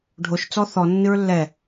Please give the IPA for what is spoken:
ɖʱoʃt͡sɔ θɔ nːɨɹlːɛ

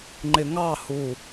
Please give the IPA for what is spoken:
ŋ͡ǃɪŋɑ hu

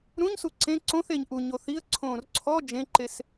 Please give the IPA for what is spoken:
ɾũɲsu ǀẽ ǀõθeɲ ʔuɲo θiə̯ ǀʰõːrǀʰɔ d͡ʒẽǃes

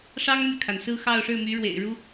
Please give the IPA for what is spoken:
ʂɑ˥ŋmy˨kʰa˩n sɹ̩˥˧xɑ˥˧ʊ̯ʂɻ̩˥˩my˧˥ ɻwḛ˨˩ɪ̯ ɻu˥

